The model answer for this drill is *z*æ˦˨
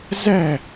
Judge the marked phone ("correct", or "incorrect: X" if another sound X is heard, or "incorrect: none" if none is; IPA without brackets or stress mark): correct